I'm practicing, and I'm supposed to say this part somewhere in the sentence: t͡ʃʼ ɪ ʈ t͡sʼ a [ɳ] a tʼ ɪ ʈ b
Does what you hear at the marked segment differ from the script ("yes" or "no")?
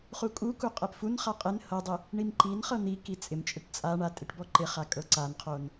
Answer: no